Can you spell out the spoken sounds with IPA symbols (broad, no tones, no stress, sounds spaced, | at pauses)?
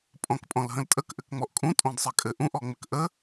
pʼ ɔ̃ k pʼ ɔ̃ l ɦ ə̃ l tʼ ə k ʔ ɘ k ŋ͡m ɔ ʔ kʼ ũ tʼ ɔ̃ d sˤ ɘ kʼ ɘ ʔ ũ ʔ ɔ ŋ͡m ɘ k ʔ ə